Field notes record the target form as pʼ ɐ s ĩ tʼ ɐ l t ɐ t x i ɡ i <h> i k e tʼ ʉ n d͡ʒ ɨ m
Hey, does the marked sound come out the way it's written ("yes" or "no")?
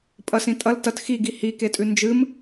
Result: yes